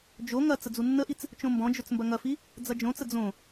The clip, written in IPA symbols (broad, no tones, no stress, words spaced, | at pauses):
d͡ʒo ŋɐ t͡səd͡zunːəʔit͡s | t͡ʃõmbɔ̃d͡ʒɵt͡s mbɐŋɐfi | d͡zɐd͡ʒõt͡sə d͡zõ